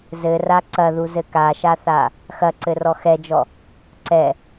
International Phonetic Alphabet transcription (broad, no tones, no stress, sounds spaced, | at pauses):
z ɘ r a ǀ ɐ ð u z ɘ k a ʃ a θ a | x ɐ ǀ ɘ r ɔ x ɛ d͡ʒ ɔ | ǀ ɛ